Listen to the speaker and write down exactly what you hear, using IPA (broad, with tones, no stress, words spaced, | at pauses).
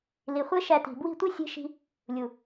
li˨χʷe˦ ʃæ˧ti̤˨ bwi̤˦˨tʷi˦sʲe̤˧ ʃi̤˧ | lʲu˨